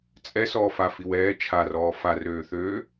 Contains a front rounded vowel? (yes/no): yes